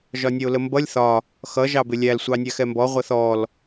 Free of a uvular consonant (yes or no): no